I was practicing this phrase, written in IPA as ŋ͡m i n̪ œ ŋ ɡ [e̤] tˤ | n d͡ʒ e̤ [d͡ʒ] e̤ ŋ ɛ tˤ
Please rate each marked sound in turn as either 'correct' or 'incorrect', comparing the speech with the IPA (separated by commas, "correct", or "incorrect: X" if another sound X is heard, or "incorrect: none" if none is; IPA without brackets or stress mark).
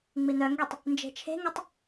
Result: incorrect: e, incorrect: t͡ʃʰ